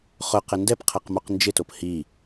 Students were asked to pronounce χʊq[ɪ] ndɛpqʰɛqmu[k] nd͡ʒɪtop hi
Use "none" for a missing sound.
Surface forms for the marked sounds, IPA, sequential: ɪ, q

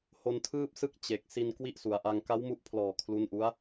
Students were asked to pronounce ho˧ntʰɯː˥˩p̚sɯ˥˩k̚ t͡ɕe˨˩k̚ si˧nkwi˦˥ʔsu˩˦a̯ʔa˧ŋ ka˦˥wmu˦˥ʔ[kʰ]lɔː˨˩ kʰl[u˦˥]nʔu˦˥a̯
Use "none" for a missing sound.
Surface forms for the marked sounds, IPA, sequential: pʰ, u˦˥

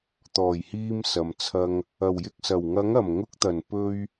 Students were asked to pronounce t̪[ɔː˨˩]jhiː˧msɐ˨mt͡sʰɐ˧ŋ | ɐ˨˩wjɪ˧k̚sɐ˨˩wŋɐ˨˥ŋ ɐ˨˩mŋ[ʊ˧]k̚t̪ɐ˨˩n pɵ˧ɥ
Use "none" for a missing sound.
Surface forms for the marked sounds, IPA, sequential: ɔː˨˩, ʊ˧

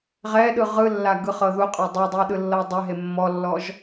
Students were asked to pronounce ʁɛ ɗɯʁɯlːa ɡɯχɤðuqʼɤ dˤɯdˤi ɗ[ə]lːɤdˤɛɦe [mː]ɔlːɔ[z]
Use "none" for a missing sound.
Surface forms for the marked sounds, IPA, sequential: ɯ, mː, ʒ

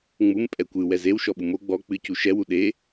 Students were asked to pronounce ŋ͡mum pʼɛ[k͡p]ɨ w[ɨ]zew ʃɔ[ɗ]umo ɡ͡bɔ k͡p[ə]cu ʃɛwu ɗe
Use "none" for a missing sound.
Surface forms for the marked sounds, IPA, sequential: kʷ, ɛ, ɓ, ɨ

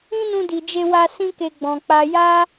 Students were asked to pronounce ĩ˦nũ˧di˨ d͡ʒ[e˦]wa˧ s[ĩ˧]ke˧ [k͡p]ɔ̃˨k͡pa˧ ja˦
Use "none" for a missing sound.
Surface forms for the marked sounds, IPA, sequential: e˧, ĩ˦, ɡ͡b

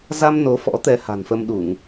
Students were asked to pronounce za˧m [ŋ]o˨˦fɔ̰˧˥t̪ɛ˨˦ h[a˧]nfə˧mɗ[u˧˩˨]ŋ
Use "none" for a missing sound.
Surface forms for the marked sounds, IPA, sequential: n, a̤˨˩, u˧˩˨

